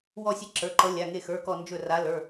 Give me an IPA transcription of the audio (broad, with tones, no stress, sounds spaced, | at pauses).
w ɔ˧˩ sʲ e˨˦ ǁ ə˞˩˧˩ ǃ ʌ˨˦ lʲ a˩˧˩ ŋ e˧˩ x ə˞˩˧˩ k ɔ˧˩ n d͡ʒ ɵ˧˩ r a˨˦ l ə˞˩˧˩